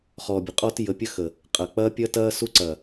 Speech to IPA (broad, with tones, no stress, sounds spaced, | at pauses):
χ ɔː˨ bʲ ə˨ qʼ ɔ˦ t j ə˨˦ pʲ ə˦ x ə˨ | qʼ ɐ˨ k͡p ɐː˦ pʲ ɐ˦ t ɐː˦ s u˦ ǀ ɐ˨